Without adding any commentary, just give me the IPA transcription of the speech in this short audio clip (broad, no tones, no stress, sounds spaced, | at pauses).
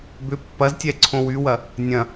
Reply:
b ʏ pː ɐ z tʲ ɛ ǀʰ õ w y w ɐ | nʲ ɐ̃